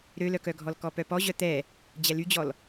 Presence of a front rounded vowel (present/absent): present